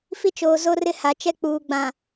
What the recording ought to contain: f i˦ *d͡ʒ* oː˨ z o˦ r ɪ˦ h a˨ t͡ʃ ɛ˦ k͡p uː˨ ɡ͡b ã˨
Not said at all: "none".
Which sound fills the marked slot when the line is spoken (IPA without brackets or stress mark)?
t͡ʃ